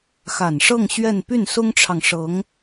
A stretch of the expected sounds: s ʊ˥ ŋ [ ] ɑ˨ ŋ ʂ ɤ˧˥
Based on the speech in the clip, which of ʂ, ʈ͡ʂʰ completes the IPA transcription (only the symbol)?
ʈ͡ʂʰ